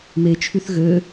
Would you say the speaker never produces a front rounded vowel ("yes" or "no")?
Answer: no